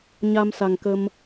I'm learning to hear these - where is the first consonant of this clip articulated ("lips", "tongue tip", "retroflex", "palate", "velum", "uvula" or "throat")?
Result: palate